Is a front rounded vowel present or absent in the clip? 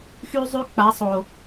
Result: present